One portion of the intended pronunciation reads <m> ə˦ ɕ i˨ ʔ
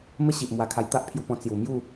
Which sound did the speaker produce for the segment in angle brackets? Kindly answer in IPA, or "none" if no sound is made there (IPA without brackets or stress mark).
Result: m